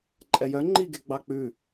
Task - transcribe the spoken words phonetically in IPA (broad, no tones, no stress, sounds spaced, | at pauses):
ǃʼ ɛ j œ ŋ͡ǃ i ɡ e ɡ͡b ɑ k͡p ʉ